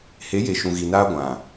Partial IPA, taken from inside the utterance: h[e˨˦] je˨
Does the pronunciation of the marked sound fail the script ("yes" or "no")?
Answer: no